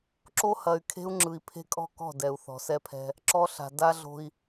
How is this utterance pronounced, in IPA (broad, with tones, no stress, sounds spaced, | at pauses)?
ǁ o˦ h ɐ˨ y̯ kʰ e̤˦ u̯ ŋ͡ǁ ɯ˨ i̯ pʰ e̤˦ kʼ ɔ̤˦ k ɔ̤˦˨ d ɛ˨ u̯ θ ɔ̤˨ s ɛ˦ pʰ ɛ̤˦ | ǁ ɔ˦ ɬ a̤˨ d a˦ ɮ o̤˦ i̯